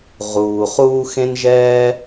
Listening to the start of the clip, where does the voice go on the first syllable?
low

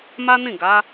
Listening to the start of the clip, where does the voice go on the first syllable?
high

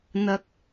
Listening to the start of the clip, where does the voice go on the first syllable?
low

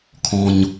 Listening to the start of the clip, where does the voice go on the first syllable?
low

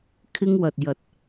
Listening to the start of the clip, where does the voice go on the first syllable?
high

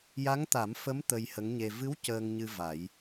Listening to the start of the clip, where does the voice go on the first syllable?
rising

